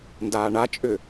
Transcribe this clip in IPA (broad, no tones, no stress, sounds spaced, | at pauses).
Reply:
n d aː ɳ a t͡ʃʼ ʏ